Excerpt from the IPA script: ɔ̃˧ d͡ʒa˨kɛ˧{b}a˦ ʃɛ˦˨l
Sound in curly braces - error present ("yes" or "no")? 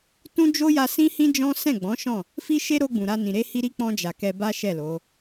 no